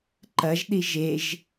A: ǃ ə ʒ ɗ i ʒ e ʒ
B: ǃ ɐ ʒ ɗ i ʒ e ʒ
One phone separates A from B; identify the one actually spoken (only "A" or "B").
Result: B